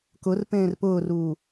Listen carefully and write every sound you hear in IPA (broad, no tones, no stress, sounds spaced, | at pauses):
k ʊ r p ẽː r p ʊː r uː